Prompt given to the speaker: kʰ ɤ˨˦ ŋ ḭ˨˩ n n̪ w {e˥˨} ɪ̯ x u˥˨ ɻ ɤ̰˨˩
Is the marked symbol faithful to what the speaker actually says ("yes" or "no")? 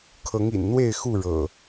yes